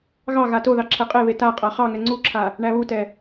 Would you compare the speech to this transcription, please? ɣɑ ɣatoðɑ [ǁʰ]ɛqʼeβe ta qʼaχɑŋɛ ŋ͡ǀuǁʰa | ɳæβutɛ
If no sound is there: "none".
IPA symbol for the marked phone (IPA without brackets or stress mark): ǁʰ